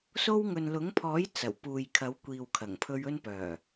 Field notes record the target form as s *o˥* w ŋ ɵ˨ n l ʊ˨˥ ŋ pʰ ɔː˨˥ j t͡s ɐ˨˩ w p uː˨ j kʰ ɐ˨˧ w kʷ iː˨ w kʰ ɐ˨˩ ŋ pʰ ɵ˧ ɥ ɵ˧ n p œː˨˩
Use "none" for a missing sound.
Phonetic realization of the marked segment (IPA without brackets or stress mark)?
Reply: o˥